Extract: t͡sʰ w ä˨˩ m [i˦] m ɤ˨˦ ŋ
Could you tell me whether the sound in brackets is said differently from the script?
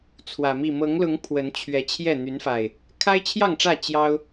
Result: yes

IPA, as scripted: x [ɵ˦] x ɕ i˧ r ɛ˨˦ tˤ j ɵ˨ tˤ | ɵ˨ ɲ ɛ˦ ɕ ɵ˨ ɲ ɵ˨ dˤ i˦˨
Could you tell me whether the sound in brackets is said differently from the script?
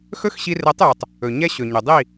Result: no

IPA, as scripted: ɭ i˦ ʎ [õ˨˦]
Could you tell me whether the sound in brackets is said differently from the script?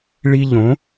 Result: no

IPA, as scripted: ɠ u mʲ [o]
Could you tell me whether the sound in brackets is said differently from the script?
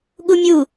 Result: yes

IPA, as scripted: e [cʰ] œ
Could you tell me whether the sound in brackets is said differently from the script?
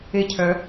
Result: no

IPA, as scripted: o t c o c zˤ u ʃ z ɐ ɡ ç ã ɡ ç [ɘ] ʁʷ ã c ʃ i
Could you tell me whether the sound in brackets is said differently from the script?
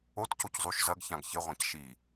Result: no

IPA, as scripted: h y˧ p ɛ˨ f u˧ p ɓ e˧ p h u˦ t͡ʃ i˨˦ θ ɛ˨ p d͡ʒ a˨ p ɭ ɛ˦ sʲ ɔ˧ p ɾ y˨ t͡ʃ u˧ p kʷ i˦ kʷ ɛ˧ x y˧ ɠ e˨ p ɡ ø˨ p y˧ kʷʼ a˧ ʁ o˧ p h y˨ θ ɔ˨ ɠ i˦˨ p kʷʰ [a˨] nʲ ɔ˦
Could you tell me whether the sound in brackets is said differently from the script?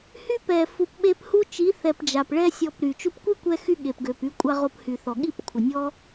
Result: yes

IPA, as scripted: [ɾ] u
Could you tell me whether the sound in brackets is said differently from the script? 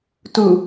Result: yes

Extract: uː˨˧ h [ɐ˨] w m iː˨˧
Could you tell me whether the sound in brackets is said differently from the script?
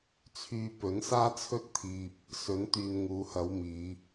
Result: yes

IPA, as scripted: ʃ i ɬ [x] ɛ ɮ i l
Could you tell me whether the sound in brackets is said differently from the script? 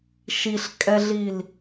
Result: yes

